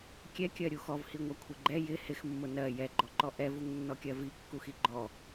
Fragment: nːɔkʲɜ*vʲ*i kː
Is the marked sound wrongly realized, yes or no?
yes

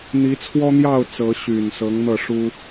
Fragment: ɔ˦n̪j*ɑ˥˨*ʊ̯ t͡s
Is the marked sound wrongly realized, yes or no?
no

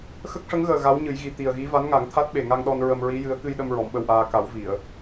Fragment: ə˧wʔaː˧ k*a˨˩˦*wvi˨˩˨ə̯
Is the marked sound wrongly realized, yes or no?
no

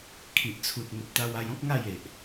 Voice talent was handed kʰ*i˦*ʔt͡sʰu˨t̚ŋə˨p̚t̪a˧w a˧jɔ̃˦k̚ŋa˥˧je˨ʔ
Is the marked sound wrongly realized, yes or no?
yes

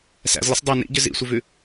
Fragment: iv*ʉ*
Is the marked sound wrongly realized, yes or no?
no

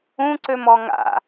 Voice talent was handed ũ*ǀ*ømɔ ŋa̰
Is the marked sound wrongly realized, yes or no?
no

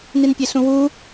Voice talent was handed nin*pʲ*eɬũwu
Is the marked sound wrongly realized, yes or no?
no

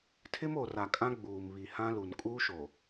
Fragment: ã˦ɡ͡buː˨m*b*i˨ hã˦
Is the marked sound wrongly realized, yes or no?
yes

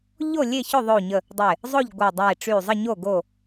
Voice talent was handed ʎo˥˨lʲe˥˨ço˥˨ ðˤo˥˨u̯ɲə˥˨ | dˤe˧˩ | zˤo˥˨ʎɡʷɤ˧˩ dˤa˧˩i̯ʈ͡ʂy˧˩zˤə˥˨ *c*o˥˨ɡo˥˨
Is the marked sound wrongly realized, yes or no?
yes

